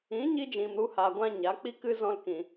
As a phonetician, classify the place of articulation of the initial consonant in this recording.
palatal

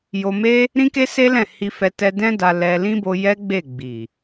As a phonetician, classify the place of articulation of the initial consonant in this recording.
palatal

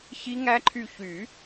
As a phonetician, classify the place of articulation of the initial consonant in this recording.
palatal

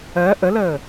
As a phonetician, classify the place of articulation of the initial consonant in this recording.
glottal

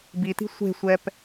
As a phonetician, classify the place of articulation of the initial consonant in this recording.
labial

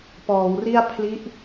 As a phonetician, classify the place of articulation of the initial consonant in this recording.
labial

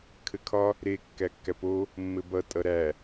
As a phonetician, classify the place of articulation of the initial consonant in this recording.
velar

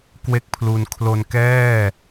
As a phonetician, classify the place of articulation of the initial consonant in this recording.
velar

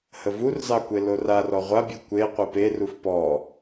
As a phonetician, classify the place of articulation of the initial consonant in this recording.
glottal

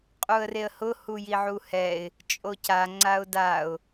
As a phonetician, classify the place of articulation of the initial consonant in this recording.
uvular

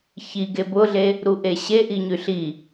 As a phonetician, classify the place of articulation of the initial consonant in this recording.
palatal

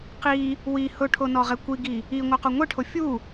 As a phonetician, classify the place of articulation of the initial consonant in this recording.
uvular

